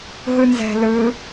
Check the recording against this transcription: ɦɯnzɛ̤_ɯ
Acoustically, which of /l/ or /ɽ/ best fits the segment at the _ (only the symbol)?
l